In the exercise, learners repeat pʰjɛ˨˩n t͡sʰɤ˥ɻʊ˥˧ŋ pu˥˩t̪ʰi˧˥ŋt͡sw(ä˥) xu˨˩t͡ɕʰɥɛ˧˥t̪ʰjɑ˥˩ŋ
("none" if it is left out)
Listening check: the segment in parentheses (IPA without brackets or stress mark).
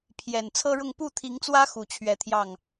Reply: ä˥